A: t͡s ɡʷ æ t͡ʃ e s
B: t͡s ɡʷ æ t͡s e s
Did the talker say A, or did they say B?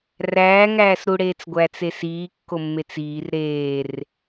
B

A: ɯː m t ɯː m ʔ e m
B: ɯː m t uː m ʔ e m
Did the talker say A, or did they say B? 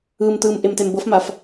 A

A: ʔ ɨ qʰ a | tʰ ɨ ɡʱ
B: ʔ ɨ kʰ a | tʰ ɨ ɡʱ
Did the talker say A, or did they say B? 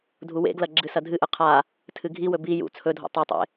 A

